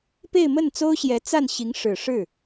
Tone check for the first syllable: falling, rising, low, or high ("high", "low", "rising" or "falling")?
falling